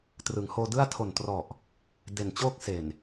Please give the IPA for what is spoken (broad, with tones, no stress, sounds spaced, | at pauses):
t r ɯ˩˦ ŋ h oː˧ d ɯ˥˩ a̯ tʰ o˨˩ n t r ɔ˨˩ ʔ | d e˨˩ n t͡ɕ oː˥˩ k̚ s e˨˩ n